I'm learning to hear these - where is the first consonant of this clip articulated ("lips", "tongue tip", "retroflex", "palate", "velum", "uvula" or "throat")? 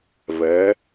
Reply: lips